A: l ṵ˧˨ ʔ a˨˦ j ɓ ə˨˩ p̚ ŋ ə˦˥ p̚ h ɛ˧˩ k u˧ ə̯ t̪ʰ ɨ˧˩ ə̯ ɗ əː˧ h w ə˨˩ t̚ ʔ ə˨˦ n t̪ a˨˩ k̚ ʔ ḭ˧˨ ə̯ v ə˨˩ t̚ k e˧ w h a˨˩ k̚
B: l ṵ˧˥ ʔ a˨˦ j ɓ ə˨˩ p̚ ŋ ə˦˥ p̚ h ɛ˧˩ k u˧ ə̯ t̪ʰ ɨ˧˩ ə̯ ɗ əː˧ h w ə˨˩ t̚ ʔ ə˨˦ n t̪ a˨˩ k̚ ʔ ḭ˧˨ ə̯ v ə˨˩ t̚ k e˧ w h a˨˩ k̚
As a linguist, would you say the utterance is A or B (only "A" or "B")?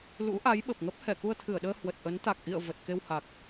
B